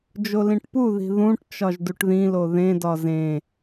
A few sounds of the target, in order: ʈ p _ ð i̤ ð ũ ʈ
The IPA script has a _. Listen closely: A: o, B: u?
B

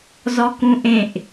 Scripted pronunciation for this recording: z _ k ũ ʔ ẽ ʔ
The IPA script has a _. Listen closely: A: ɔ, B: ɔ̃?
A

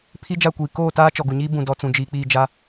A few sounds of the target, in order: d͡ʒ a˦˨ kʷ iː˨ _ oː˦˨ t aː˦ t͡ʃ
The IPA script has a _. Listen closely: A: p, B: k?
B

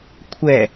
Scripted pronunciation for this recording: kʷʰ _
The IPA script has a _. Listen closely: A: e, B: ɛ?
B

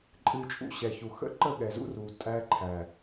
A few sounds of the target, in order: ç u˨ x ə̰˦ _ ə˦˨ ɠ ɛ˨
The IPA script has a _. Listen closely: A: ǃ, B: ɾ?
A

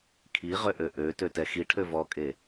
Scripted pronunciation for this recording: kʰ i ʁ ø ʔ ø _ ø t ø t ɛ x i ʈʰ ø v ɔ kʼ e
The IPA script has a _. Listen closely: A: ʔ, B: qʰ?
A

